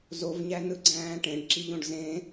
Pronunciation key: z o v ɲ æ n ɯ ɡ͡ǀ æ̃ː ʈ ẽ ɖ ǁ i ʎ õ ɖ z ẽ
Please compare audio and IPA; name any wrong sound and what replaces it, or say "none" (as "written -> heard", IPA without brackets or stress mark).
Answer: none